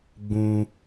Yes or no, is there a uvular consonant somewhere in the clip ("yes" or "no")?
no